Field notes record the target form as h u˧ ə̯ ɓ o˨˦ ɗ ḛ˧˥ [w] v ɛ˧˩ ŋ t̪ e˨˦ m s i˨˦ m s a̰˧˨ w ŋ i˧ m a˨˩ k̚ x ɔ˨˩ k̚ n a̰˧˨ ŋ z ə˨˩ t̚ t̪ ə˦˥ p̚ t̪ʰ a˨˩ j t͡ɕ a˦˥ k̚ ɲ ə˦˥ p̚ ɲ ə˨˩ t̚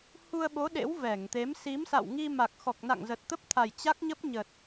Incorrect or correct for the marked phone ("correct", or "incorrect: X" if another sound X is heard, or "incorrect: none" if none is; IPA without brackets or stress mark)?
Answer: correct